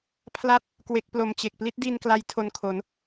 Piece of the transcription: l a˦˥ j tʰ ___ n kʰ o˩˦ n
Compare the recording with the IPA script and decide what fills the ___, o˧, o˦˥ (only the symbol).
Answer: o˧